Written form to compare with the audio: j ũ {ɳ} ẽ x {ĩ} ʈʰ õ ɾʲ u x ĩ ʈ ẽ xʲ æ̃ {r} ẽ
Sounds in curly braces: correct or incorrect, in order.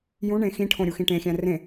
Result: correct, correct, correct

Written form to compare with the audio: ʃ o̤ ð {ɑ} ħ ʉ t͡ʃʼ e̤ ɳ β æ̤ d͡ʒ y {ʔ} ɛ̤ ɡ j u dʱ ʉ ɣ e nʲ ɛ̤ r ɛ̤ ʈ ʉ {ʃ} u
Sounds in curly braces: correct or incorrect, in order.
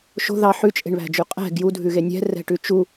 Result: correct, incorrect: qʼ, incorrect: t͡ʃ

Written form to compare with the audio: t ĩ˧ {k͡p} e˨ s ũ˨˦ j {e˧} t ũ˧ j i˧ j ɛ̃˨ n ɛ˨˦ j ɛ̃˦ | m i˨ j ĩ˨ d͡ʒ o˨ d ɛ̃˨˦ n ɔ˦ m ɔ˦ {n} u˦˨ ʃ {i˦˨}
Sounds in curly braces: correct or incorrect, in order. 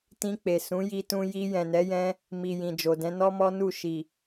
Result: correct, incorrect: i˧, correct, incorrect: i˨

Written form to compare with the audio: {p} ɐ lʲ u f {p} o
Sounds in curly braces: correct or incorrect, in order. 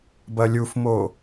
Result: incorrect: b, incorrect: m

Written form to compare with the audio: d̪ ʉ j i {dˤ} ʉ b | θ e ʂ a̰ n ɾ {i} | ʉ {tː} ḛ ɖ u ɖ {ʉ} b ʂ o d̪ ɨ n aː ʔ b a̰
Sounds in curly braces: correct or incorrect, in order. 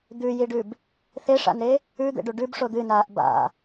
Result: incorrect: ɖ, incorrect: e, incorrect: d̪, correct

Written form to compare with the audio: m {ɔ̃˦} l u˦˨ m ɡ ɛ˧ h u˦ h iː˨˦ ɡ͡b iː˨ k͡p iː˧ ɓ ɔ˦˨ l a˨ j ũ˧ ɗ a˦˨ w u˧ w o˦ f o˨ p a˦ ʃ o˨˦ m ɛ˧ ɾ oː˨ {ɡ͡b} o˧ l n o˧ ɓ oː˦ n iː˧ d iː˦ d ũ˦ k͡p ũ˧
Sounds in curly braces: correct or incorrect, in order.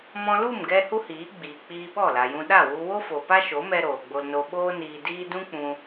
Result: incorrect: ɔ̃˧, correct

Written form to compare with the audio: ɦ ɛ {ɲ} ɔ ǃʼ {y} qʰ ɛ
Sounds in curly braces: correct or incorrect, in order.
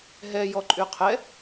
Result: incorrect: j, correct

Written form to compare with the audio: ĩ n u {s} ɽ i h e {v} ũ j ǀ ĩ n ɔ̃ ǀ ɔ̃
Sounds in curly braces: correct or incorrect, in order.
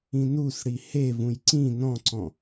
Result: correct, correct

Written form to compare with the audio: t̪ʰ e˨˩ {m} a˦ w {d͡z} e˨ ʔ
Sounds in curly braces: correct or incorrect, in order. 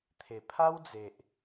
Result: incorrect: pʰ, correct

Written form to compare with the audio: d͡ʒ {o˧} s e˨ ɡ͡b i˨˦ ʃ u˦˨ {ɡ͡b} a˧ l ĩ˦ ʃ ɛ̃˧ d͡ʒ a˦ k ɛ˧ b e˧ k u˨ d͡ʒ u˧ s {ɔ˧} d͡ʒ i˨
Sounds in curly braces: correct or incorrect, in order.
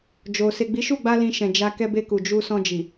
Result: incorrect: o˨, correct, incorrect: ɔ̃˧

